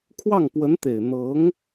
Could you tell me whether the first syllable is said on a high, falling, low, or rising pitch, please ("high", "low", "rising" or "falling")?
falling